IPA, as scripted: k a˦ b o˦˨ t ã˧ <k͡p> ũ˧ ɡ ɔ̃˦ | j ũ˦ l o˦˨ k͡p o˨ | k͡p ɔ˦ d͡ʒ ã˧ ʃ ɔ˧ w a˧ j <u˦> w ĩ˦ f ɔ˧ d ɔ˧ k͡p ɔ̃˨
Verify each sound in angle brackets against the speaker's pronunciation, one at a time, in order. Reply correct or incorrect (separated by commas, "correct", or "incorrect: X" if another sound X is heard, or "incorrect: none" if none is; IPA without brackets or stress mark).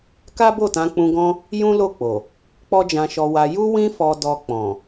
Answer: correct, correct